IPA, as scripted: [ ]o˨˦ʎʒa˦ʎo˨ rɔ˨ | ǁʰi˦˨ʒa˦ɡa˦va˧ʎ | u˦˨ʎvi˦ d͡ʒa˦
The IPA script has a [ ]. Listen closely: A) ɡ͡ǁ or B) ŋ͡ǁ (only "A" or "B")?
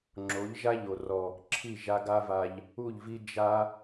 B